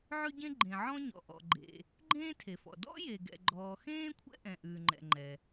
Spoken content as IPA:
ʕ ʉ˥ ɟ ẽ˥ ɡ͡ǃ ẽ˩ ʕ ɔ̃˥ ɲ ɔ̰˩ ʔ ɔ̰˩ ɡ͡ǃ ḛ˩ | ɡ͡ǃ ẽː˥ tʰ e˩ f ɔ̰˩ d ɔ̰˥ j e˩ ɡ ɛ̰˩ ɡ͡ǃ ɔː˩ x ẽː˥ kʷʰ ɛ̰˥ ʔ ɛ̃˩ ʔ ʉː˩ ŋ͡ǃ ɛ̰˩ ŋ͡ǃ ɛ˩

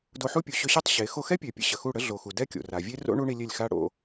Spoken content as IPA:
d o˧ ħ u˦ pʲ u˨ ɕ ø˧ ɕ ɛ˦ tˤ ɕ e˨˦ x o˧ x ɛ˦ pʲ ø˨ pʲ ə̰˦ ɕ ə˨ x u˦˨ ɽ ə˦ ɮ o˨ x u˨ d ɛ˦ kʲ o̰˨ r a˨ vʲ e˦ r o̰˦ ɳ u˦ ɳ i˧ lʲ e˦˨ lʲ x a˦ ɽ o̰˧

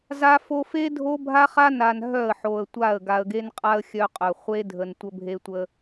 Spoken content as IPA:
z a˦ f o˦ f e˦ dʱ o˦ bʱ a˦ χ a˦ n a˨ n ɦ œ˦˨ ə̯ ħ o˨ ə̯ tʷ a˦˨ ə̯ ɡ a˨ ə̯ ɡ e˦ n qʼ a˦ ə̯ xʲ œ˦ qʼ œ˨ χʷ e˦ dʱ ə˨ n tʷ ə˦ bʱ e˦ tʷ ə˦

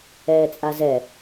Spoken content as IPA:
ɛː t͡sʼ a z ɛ

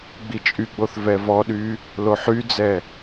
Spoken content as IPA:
ɡ͡b i t͡ʃʼ y ɡ͡b o θ v ɛ v ɔ ɗ y | l o ħ y d͡z ɛ

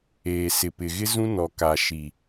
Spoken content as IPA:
eː˨ s ɪ˨ p ɪ˨ ɣ ɪ˦ z ũ˦ n ɔ˨ k a˨ ʃ i˨

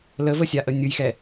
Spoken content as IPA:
l ə v ə sʲ a ʔ ə nʲ ɯ j x ɛ

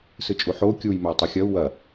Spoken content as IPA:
s ɨ t͡ʃʼ u ħ o u̯ kʲ u j m ɵ i̯ tˤ u xʲ ɐ u̯ w ɐ

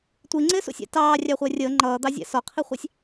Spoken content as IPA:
tʷ i ŋ͡ǀ ɪː s ṵ sʲ æ̰ t ɑː rʲ ɑ χʷ ɛ rʲ əː ŋ͡ǃ ʌː d̪ ɑ zʲ æ̰ s ɔ qʰ i χʷ ɑ sʲ

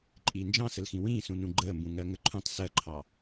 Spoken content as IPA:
ǃʼ iː n d͡ʒ ɑ̃ s ə l x ĩ w ĩː s ũ n ũ ɡ͡ǃ əː m b ũ ŋ ɜ ŋ ə ǃʰ ũ tˤ s ɜ ǃʰ ɑ

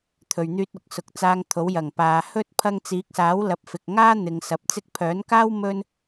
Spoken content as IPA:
t̪ʰ ɵ˨ ɥ n̪ yː˧ t̚ ʊ˨ k̚ s ʊ˨˥ k̚ t͡s aː˧ ŋ t̪ʰ o˨˥ w j ɐ˨˩ ŋ p aː˨ h ɵ˥ t̚ pʰ ɐ˧ ŋ t͡s iː˨˥ k̚ s aː˨˥ w l ɐ˨˥ p̚ f ɪ˨ k̚ ŋ aː˥ n̪ ɪ˨˧ ŋ s ɐ˨˥ p̚ t͡s ɪ˥ k̚ pʰ œː˨˥ n k aː˥ w m ɵ˥ n

